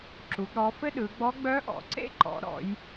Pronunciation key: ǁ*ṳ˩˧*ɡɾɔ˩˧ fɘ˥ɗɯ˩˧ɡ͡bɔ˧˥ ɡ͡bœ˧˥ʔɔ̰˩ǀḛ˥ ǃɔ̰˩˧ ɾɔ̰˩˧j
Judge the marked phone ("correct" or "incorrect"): incorrect